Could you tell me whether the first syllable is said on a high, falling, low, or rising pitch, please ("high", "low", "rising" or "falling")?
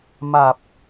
low